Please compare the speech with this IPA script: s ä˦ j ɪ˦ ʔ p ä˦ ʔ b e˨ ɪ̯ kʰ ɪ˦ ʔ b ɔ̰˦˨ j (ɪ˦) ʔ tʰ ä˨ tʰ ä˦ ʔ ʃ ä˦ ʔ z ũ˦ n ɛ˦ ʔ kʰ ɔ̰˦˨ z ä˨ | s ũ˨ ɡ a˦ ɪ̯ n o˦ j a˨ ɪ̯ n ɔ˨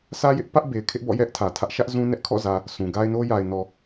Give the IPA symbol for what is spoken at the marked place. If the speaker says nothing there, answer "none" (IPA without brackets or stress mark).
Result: ɛ˦